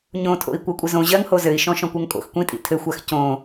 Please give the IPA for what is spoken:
ɲ õ tʰ o̰ i̯ kʷ ɜ kʷʼ ɪ z õ ʑ ɜ ŋ h o z ɘ i̯ ʃ ɔ̃ ʃ ɔ̃ kʷ ɜ ŋ kʼ o̰ x kʷ ĩ tʼ ḭ tʰ ɘ xʷ a x c õ

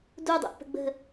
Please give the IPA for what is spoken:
d u dˤ ṵ ʔ p ə̤ ɡ͡b ə̤

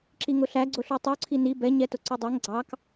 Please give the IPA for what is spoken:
ǁ i ŋ ʊ ɬ æ ɡ͡ǀ ʊ ɬ u tˤ u ǀʰ i n i b ɛ ɲ ɛ t ʊ ǀ u dˤ ɛ ŋ ɡ͡ǀ ɑ k

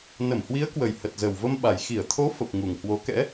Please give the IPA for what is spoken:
n ə˧˩ m h w i˨˦ ə̯ k w ə˨˩ j h ə˨˩ t̚ z ə˨˩ w v ə˧ m ɓ a˨˩ j x i˧˩ ə̯ t̪ʰ o˨˦ f ə˨˩ p̚ ŋ u˨˩ ŋ h w o˨˦ k ɛ̰˧˥

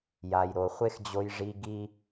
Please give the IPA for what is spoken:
j a˨ j ɾ o˨ χʷ e˦ x d͡ʑ o˧ j ʐ i˧ ɡ i˦

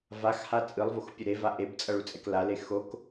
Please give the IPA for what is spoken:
v a x h a t͡sʼ ɯ lˠ v o x pʲ u ɾ e v a ʔ e b t͡sʼ ʌ ɭ u t͡sʼ ɛ k l a l e x o k

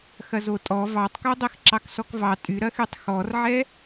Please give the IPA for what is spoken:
x ɐ z o tʼ ɔ v ɑ tˤ k o dˤ e x ǁ ɑ k s ɔ k v ɑ tʼ y ɾ ɐ x y tˤ x ɔ r ʕ ɛ

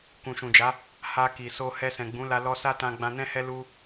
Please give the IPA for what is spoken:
k ũ˨ ʃ ũ˨ d͡ʒ a˨˦ | h a˧ k i˨ s o˧ h ɛ˧ s ɛ̃˨ ɡ͡b ũ˨˦ l a˧ l ɔ˧ s a˦ t ã˧ ɡ͡b ã˧ n ɛ̃˦ h ɛ˦ l u˦

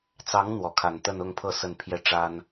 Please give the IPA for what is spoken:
t͡s ɑ˧˥ ŋ n̪ w ɔ˧˥ kʰ a˨˩ n t̪ ə˥˧ n ʊ˥˧ ŋ pʰ ɤ˥˧ s ə˥˧ n pʰ j ɛ˥˩ ʈ͡ʂ a˥ n

